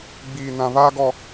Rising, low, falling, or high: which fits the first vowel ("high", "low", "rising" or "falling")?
low